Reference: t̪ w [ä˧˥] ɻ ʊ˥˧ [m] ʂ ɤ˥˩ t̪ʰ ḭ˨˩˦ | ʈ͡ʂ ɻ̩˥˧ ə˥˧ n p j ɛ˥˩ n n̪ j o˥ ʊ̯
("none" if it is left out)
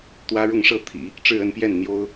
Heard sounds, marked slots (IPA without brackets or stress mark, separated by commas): ä˥, ŋ